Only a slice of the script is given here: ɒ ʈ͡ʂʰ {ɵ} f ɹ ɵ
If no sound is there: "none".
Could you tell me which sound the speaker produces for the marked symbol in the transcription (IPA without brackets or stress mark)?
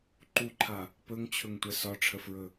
ə